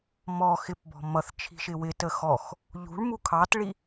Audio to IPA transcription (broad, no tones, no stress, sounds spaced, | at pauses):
m ɔ x ɪ p b ɔ̤ m ʌ θ t͡ʃʰ i̤ ʃ ɪ w ɪ t ə x ɔ x | ʎ ṳ ɭ m u kʰ ɑ t ɭ i